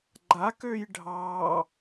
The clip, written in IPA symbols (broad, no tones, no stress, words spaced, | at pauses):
ɡ͡ǃak øjɖʱɑ